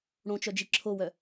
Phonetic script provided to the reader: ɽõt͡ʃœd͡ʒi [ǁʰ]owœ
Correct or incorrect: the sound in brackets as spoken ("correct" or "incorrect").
correct